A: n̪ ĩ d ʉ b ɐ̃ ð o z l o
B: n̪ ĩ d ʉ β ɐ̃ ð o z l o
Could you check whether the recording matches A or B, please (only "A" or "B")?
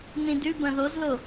A